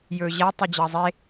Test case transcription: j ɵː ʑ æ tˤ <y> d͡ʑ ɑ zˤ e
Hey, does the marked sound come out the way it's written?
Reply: yes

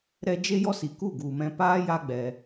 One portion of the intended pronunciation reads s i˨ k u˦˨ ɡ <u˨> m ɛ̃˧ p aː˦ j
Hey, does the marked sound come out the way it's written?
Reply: yes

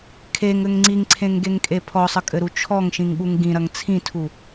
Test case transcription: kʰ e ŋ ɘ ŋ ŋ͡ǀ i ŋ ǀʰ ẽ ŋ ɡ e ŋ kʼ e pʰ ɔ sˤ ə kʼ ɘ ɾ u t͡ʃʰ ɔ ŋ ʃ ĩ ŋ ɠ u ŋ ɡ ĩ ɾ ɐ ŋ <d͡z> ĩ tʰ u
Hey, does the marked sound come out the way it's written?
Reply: no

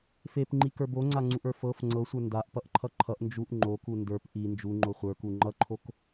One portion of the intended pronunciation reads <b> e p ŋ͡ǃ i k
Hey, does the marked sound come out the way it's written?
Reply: no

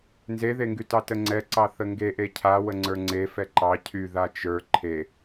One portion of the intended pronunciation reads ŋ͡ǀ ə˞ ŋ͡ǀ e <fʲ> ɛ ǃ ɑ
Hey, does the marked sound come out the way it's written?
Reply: no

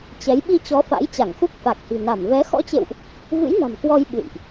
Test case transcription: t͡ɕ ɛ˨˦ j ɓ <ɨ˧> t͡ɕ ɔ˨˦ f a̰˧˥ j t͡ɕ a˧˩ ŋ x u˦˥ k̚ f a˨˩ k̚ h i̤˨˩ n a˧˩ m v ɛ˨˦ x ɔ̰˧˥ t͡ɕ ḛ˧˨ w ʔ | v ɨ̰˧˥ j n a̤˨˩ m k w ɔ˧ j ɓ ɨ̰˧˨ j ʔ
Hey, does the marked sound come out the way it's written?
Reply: no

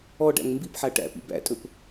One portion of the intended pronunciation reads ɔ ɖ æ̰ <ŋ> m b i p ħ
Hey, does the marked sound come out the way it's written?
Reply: yes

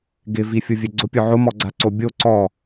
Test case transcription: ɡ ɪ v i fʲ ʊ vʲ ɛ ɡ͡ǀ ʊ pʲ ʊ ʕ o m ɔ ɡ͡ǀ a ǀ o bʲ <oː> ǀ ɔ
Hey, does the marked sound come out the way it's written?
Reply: no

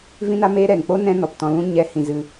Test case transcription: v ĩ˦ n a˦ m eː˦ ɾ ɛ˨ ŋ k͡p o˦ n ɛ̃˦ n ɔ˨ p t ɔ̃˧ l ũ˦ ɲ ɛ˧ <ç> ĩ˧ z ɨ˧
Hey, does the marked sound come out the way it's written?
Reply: no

